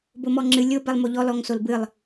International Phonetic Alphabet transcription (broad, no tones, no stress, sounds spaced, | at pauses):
b o m ɔ ŋ͡ǁ ɨ lʲ o b ɛ lˠ m o ʎ ɔ l ɔ ŋ s o l b ɨ lˠ